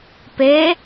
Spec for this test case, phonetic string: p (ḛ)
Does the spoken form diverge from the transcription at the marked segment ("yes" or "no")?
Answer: yes